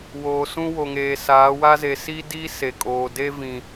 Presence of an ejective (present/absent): present